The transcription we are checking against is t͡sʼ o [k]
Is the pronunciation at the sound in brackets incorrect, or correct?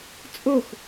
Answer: incorrect